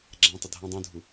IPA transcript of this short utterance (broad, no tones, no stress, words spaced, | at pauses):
ɡ͡ǁã tˤɪdʱã dˤũdʱu